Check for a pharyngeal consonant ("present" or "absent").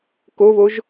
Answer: absent